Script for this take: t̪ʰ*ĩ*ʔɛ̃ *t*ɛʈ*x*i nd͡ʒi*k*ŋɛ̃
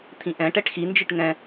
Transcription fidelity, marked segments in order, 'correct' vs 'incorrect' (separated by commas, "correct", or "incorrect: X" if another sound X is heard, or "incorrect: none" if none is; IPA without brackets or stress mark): correct, incorrect: ʈ, correct, incorrect: ʈ